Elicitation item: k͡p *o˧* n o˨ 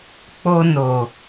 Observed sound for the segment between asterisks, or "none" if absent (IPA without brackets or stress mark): o˧